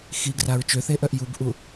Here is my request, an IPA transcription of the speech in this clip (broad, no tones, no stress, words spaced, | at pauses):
xiɡraɹ t͡ʃøθeʔœʔ jubʔu